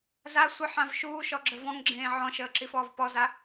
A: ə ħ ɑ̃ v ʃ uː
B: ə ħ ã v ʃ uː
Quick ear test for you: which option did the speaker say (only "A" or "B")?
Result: B